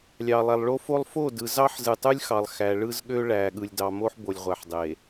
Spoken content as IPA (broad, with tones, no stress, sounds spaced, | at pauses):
lʲ ɑ˨ lˠ æ˨ lˠ ɭ o˦ f o˦ lˠ f o˦˨ d ɯ˨ z ɑ˦ ħ z ɯ˨ tˤ ɯ˦ lʲ x ɑ˨ lˠ x æ˨ ɭ ɯ˦ z ɠ ø˦ ɭ æ˨ ɠ ɯ˨ lʲ d ɑ˨ m o˦ ħ b o˨ lʲ ʁʷ æ˨ ħ dˤ e˨